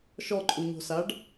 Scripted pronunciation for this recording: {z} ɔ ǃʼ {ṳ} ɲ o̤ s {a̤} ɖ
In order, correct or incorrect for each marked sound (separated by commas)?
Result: incorrect, incorrect, incorrect